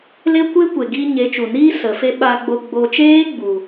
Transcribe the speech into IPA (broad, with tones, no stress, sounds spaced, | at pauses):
l e˦ kʷ e˦ kʷ e˨ ɡ iː˧ ɲ e˨˦ t͡ʃ u˨ n iː˦ s ə˨˦ f e˦ ɓ a˧ ɡ͡b o˧ ɡ͡b o˧ t͡ʃ eː˦ ɡ͡b u˨